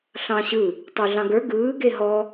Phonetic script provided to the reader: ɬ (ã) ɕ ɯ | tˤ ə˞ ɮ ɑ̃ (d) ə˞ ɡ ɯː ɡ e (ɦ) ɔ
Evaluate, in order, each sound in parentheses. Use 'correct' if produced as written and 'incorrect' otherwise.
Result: incorrect, incorrect, correct

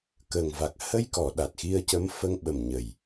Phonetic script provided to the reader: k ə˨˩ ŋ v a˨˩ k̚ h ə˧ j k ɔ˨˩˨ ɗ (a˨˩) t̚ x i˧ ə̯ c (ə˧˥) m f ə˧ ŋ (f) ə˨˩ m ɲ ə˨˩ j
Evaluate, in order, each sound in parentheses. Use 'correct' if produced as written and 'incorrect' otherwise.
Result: correct, correct, incorrect

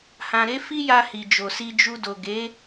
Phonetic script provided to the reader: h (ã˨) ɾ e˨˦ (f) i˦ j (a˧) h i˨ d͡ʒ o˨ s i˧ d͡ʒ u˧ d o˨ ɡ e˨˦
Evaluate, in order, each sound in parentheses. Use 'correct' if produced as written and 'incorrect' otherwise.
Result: correct, correct, correct

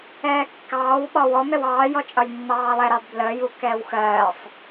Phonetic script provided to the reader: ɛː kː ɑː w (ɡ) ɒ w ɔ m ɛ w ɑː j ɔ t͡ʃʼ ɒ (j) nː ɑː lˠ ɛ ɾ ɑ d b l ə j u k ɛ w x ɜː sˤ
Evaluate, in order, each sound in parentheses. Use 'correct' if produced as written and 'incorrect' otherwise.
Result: incorrect, correct

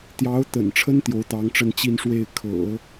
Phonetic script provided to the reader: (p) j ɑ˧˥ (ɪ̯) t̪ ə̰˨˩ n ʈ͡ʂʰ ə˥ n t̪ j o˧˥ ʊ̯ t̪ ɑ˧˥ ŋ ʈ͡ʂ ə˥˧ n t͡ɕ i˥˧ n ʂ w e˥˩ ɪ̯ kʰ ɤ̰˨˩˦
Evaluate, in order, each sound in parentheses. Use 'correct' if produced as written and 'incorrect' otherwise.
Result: incorrect, incorrect

